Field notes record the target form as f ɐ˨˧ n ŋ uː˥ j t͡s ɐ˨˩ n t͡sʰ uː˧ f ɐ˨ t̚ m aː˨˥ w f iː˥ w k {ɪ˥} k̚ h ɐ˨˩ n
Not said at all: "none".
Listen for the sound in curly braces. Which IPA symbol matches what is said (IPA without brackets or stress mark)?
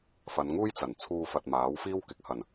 ɪ˨˥